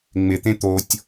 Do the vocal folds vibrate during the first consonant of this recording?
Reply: yes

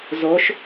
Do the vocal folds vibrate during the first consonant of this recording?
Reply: yes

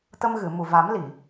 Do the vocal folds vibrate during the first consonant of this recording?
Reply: no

